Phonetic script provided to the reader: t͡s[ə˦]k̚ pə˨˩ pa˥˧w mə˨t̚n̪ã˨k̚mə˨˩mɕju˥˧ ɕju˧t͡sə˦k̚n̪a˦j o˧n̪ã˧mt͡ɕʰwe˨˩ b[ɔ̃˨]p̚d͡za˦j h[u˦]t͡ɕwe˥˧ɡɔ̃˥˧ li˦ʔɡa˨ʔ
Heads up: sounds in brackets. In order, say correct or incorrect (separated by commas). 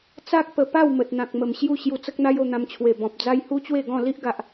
incorrect, correct, correct